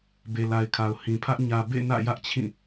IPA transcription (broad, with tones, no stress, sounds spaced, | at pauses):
b e˨ l a˨ ɪ̯ kʰ a˨ ʊ̯ h ĩ˨ pʰ ä˦ ʔ ɲ ä˨ b ḛ˦˨ n ä̰˦˨ j ä˦ ʔ t͡ɕʰ ĩ˦˨